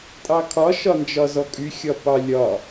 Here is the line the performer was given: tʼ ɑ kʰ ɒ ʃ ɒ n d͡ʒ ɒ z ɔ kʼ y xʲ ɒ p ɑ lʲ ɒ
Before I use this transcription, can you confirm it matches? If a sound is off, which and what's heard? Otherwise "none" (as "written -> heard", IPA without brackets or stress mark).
none